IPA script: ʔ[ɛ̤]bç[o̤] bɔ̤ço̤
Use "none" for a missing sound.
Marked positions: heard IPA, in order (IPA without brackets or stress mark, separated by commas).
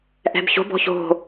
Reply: ɛ̤, o̤